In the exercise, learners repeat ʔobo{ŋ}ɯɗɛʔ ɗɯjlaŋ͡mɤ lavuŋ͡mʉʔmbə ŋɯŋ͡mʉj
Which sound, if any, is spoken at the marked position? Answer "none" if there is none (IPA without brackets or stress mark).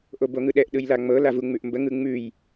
ŋ